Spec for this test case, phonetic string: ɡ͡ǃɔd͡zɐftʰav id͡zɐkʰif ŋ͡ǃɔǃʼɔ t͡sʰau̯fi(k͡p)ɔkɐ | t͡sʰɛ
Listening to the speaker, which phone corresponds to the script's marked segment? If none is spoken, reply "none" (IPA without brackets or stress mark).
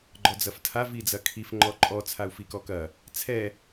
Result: k